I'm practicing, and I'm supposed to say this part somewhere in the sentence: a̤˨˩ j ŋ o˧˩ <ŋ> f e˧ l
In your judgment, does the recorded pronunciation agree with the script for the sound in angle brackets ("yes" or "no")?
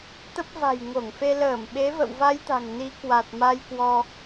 yes